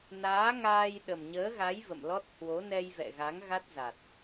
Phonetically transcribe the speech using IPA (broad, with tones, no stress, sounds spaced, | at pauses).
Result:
n aː˨˦ ŋ aː˧ j ɗ ə˨˩ m ɲ əː˨˦ ɣ a˨˦ j v ə̰˧˨ m l ɔ˦˥ t̚ h w o˨˦ n ɛ˧ j v ɛ̰˧˨ ɣ a˨˦ ŋ ɣ a˦˥ t̚ z a˨˩ t̚